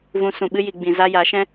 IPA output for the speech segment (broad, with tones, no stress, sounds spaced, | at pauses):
v ũ˨ s ũ˨ ɓ ɨ˧ j i˨ ɡ͡b ĩ˨ z a˧ j a˨˦ ʃ ɛ̃˦